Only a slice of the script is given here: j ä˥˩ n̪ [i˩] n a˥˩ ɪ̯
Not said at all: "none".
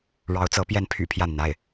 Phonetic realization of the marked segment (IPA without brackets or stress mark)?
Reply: i˩